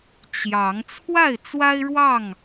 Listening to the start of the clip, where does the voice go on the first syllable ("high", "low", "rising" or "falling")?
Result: rising